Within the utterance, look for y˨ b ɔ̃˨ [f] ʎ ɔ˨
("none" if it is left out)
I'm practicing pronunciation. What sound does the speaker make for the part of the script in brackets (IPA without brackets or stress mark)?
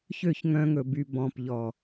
p